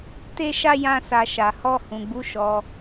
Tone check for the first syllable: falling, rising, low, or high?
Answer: high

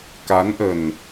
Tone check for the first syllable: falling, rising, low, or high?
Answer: rising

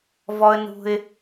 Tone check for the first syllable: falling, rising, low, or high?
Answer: high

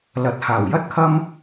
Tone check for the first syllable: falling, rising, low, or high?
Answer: rising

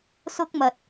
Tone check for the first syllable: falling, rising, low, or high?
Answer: high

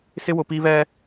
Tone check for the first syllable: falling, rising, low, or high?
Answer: high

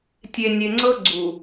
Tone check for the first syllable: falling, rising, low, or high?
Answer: low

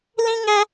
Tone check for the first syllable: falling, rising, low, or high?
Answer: high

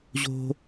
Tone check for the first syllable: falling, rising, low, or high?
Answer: high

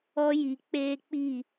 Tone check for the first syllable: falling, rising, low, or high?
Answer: high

